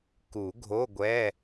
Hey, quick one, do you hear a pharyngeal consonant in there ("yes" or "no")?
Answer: no